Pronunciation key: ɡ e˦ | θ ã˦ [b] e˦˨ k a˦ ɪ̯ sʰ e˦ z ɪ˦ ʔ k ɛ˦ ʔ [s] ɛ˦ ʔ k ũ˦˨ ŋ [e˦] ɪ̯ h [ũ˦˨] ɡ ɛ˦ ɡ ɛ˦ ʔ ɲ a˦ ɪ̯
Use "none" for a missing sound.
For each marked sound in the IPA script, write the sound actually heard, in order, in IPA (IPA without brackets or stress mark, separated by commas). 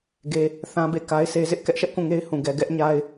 b, ʃ, e˦, ũ˦˨